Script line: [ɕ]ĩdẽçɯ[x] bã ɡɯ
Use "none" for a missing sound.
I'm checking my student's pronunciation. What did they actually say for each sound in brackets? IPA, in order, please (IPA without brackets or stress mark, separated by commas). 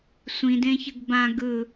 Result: sʷ, ɡ